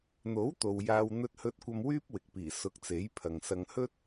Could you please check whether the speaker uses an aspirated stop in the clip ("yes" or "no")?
yes